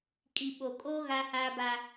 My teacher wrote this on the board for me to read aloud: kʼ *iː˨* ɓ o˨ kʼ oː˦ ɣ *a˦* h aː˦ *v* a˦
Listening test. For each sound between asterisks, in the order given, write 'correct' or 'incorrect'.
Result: incorrect: i˨, correct, incorrect: b

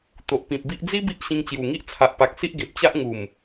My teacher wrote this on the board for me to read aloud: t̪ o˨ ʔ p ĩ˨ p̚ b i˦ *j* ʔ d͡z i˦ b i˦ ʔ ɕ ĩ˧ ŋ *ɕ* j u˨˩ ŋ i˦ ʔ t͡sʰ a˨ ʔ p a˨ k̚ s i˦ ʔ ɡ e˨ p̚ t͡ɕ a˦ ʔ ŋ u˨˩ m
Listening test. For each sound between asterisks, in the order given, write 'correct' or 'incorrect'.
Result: incorrect: none, incorrect: t͡ɕ

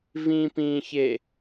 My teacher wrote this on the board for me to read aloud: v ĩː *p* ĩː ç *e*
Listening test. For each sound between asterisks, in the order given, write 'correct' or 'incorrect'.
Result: correct, correct

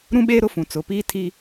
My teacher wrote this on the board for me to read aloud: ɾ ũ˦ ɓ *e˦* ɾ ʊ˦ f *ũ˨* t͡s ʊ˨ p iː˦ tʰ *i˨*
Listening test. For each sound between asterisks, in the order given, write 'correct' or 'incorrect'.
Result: incorrect: eː˦, correct, incorrect: i˦

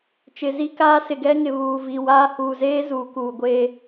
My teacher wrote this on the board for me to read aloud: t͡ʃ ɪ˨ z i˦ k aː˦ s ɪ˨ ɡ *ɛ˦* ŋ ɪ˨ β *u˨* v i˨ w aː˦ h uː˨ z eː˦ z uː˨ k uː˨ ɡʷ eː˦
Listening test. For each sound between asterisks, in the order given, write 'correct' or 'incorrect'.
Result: correct, incorrect: uː˨

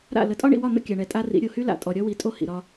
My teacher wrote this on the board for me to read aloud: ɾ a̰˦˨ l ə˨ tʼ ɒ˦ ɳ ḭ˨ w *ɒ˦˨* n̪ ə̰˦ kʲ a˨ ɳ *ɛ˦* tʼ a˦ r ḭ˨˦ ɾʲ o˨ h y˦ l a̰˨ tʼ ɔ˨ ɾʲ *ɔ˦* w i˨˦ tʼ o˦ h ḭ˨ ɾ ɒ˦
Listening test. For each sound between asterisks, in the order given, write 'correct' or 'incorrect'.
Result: correct, incorrect: ɛ˨˦, correct

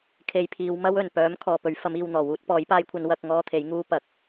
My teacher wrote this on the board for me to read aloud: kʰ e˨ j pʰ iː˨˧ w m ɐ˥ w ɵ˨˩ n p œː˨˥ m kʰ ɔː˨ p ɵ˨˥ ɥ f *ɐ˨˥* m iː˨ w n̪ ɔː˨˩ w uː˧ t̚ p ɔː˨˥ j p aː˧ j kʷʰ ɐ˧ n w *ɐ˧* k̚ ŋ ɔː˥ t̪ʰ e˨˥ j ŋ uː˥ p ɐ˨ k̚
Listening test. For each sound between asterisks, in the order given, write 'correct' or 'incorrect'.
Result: correct, correct

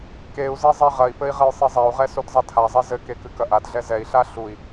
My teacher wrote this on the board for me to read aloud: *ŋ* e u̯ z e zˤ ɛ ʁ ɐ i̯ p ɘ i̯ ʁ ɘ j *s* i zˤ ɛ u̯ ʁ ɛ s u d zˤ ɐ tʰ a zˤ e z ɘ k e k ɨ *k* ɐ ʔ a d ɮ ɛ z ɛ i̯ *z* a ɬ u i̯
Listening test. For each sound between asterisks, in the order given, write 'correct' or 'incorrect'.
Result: incorrect: k, incorrect: sˤ, correct, incorrect: ɬ

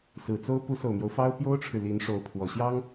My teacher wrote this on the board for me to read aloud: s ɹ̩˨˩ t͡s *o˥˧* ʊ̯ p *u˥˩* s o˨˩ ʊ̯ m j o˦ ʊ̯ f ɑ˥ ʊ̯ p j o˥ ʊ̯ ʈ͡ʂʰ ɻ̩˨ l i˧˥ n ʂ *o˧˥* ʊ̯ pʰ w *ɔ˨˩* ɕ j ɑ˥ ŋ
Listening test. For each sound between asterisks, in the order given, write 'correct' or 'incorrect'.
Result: incorrect: o˥, incorrect: u˧˥, correct, correct

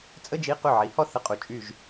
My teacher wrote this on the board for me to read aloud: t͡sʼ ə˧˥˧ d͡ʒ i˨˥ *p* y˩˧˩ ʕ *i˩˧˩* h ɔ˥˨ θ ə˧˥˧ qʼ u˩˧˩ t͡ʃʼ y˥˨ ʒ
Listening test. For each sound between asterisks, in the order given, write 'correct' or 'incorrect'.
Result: incorrect: q, incorrect: i˩˧

